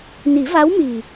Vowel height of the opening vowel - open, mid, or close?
close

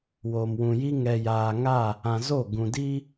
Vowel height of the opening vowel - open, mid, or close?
mid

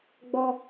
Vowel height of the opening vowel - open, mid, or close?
mid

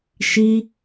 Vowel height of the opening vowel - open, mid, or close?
close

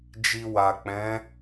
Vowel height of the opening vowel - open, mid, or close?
close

